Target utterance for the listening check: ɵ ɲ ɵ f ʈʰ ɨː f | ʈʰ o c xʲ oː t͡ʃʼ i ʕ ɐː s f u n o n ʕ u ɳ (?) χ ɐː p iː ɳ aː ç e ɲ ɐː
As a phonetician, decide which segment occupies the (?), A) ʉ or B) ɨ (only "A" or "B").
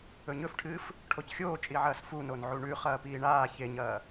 A